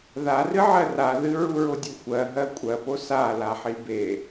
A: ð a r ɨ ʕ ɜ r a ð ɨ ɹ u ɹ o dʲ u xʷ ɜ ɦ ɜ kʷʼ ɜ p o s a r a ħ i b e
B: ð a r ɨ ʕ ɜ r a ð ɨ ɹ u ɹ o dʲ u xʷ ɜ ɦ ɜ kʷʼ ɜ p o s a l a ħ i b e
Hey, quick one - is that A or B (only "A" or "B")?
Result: B